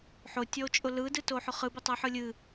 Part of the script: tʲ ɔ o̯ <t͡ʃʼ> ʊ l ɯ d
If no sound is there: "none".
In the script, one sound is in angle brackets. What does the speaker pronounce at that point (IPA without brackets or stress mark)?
t͡ʃʼ